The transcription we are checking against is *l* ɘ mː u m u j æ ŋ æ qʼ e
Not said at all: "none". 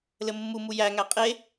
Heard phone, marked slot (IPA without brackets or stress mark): l